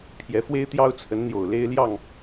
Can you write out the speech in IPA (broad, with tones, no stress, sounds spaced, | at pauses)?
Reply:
pʰ j ɛ˨˦ f w e˦ ɪ̯ t̪ j ɑ˦ ʊ̯ t͡sʰ ə˨˦ n n̪ j o˨˩ ʊ̯ l e˦ ɪ̯ l j ɑ˥˨ ŋ